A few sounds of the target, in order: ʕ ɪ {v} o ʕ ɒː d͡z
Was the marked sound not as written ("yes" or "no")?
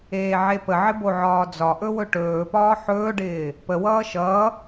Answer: yes